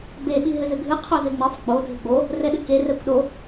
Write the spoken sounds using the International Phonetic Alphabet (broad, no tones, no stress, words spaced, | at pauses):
beɓi ɦɘzɘɡʱɨ qʰozɘŋ͡mesˤ ɡ͡bo dʱɘɡ͡bo | rɛɗɨke rɛkʷɗo